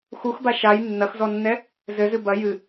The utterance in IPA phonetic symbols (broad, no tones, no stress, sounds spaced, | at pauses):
x u x b a ʃ a j nː ɐ x z ɔ nː ɛ | z ɘ z ɨ b ɐ j ɨ